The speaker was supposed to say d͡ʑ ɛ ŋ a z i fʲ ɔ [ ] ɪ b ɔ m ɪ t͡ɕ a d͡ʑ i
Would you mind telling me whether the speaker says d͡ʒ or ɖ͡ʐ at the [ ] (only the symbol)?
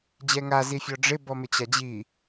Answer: ɖ͡ʐ